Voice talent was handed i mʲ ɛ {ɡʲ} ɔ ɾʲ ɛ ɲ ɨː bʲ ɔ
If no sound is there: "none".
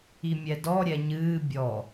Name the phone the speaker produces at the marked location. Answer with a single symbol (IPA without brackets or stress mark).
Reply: d